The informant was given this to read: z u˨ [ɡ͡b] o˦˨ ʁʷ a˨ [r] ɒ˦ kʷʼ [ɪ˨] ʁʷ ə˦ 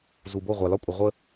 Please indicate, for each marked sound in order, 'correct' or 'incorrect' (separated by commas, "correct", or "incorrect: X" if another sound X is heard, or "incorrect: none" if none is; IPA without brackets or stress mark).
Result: incorrect: b, incorrect: l, incorrect: ə˨